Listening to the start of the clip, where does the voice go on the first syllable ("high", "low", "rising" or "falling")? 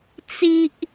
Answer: low